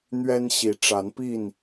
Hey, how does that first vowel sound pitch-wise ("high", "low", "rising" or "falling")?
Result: high